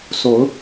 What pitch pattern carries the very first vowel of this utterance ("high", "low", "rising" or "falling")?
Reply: rising